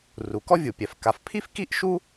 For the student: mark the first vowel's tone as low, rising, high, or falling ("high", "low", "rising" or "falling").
low